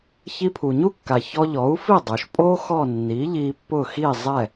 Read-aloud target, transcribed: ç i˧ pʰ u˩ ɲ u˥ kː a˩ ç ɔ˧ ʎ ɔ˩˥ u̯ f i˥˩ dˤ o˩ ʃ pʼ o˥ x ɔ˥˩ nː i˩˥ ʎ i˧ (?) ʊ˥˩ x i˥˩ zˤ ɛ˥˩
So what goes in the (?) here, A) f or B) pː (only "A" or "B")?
B